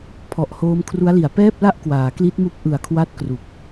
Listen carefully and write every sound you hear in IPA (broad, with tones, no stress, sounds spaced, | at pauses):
pʰ ɔ˨˩ ʔ h oː˦˥ m kʰ r u˦˥ a̯ l i˨˩ a̯ p ɛː˥˩ p̚ l a˥˩ ʔ k w aː˩˦ k l i˦˥ t̚ m u˦˥ k̚ ʔ ɯ˨˩ a̯ kʰ w a˦˥ t̚ k r u˨˩ k̚